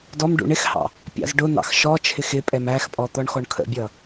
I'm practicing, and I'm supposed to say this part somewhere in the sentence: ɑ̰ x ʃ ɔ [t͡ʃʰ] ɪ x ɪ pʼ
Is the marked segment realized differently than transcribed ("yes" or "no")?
no